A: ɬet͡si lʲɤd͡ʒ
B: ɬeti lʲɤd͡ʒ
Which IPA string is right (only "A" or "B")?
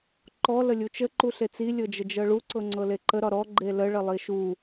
A